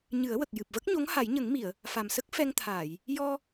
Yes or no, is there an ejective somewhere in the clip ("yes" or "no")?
no